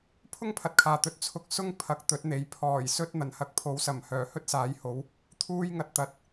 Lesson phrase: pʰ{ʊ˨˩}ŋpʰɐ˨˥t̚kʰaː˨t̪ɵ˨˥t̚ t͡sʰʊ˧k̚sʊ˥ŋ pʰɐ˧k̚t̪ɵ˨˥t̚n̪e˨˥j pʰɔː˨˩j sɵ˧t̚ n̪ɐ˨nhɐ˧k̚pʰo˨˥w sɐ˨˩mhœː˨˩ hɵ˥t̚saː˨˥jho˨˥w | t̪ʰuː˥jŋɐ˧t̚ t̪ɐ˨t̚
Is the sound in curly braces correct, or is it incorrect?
incorrect